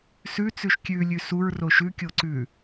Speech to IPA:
s ʉ t͡s ʉ ʃ kʲ ʉ lʲ ʉ s u ɹ r o ʃ ʉ kʲ o ǀ ʉ

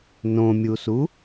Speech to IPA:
n õ mʲ u s u

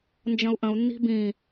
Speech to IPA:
n d͡ʒ ə̃ u̯ ʔ ə̃ u̯ nː i̤ b ĩ

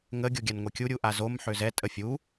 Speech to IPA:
ŋ ə ɡʲ o ɡʲ a n ŋʷ ɛ kʲ u ɾʲ u ʔ a z o m ħ ø z ɛ tʼ ə fʲ u

